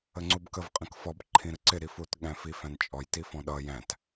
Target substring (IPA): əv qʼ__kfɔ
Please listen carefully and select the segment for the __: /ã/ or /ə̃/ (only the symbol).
ə̃